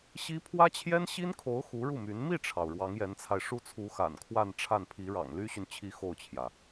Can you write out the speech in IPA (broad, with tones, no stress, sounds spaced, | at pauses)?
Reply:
ɕ i˥ pʰ w ä˥ t͡ɕʰ j ɛ˥ n ɕ i˥ n kʰ o˧˥ ʊ̯ x u˧˥ ɻ u˥˩ m y˧˥ n m i˥˩ ʈ͡ʂʰ ɑ˩ ʊ̯ ɻ w ɑ˧˥ ŋ j ɛ˧˥ n t͡sʰ a˧ ɪ̯ ʂ u˥ t͡sʰ u˧˥ x a̰˨˩ n kʰ w a˥˧ n ʈ͡ʂʰ a˥˩ n pʰ i˧˥ ɻ ɑ̰˨˩ ŋ l y˥ ɕ y˨ n t͡ɕʰ i˧˥ x o˥˩ ʊ̯ t͡ɕʰ j ä˩